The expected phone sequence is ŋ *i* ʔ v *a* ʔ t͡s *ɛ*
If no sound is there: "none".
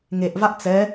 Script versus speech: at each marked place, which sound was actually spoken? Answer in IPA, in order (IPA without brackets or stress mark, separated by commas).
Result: e, a, ɛ